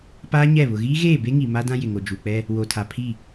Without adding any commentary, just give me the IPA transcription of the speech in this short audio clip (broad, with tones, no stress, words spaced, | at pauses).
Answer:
paː˦ɲɛ˦˨ βʊ˨ɣiː˦ɣeː˦˨ be˦ŋi˨ ma˦dã˦ jɪ˨ŋo˨ d͡ʒu˨k͡pɛ˦ | wo˨tʰa˨ pʰi˦˨